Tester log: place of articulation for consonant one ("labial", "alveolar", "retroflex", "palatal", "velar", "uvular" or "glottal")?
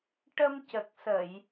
retroflex